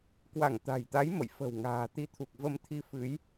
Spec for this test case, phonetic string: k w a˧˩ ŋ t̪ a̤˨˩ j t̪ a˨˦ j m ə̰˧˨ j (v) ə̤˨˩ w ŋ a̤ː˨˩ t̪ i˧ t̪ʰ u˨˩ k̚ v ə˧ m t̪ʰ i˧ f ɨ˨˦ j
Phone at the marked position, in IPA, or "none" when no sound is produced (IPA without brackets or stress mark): f